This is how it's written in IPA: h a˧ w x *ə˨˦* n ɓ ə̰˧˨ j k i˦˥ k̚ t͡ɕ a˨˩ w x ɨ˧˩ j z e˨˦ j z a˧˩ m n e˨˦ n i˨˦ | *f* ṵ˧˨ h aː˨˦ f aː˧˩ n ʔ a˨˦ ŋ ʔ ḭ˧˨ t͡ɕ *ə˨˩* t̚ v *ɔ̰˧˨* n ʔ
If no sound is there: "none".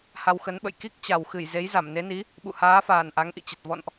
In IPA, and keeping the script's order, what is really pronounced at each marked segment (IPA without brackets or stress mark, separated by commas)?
ə˨˦, ɓ, ə˨˩, ɔ̰˧˨